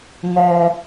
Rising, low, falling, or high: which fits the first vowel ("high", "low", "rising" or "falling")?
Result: low